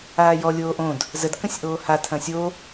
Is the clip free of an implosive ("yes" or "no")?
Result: yes